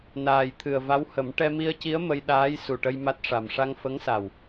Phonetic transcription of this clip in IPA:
n aː˨˩ j t̪ʰ ɨ˨˩ ə̯ v a˧˥ w h ə˨˩˦ m ʈ ɛ˧ m i˧ ə̯ c i˧˥ ə̯ m ə˧ j ɗ aː˧˥ j s u˨˩ ʈ ə˧ j m a˦˥ t̚ ʂ a˨˩ m ʂ a˧ ŋ f ə˧˥ ŋ s a˨˩ w

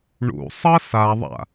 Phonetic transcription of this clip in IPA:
ɳ ṵ sˤ ʌ s a ðˤ a̰

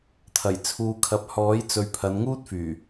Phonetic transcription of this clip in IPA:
t̪ʰ ɐ˨˩ j t͡sʰ uː˧ kʰ ɐ˧ p̚ h ɔː˨˥ j t͡s ɵ˨ ɥ pʰ ɐ˨˧ n ŋ uː˥ t̚ f yː˨˩

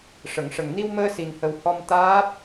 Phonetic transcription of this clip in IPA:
ʂ ə˨˩˨ ŋ ʂ ə˨˩ ŋ n i˧ w m əː˧ s i˨˩ n h ə˨˩ w h ɔ˧ m t̪ aː˦˥ p̚

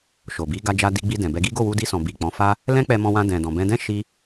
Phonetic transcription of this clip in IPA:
ʃ o˨ b i˨˦ ɡ a˧ d͡ʒ a˧ d i˧ ɡ͡b i˧ d ɛ̃˨ b ɛ˧ ɡ i˦ ɡ o˦˨ w u˧ d i˧ s ɔ̃˨ b i˨ k͡p ɔ̃˨˦ f a˦ | l ɛ̃˦ k͡p ɛ˧ m ɔ̃˧ w ã˧ d ɛ̃˨ d ɔ̃˨ b ɛ̃˧ d ɛ̃˦ ʃ i˧

